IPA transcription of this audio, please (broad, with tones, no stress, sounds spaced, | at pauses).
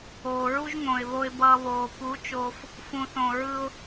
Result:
oː˨ ɹ u˦ ʒ ŋ õ˨ ɪ̯ β o˧ ɪ̯ b ʌː˧ β oː˨ p u˨˦ t͡ʃ oː˧ f | f ũ˨ θ õ˨ ɹ ɯ˧ ʊ̯